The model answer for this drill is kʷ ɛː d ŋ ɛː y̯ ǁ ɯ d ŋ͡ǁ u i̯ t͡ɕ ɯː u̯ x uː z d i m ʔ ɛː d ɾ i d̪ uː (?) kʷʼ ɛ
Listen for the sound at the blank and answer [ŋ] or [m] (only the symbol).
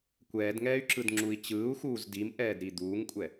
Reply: ŋ